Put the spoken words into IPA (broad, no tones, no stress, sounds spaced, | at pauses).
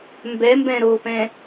m b ɛ m b ɛ̃ ɾ o p ɛ̃